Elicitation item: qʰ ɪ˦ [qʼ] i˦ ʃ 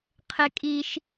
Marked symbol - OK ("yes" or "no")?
no